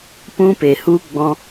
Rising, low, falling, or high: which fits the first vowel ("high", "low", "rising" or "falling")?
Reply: high